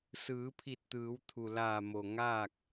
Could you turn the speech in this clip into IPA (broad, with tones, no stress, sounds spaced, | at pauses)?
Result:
s ɯː˩˧ pʰ i˧˩ t̚ t̪ ɯː˩˧ w t̪ʰ u˩ l aː˧˩ m o˩ ŋ aː˥˨ k̚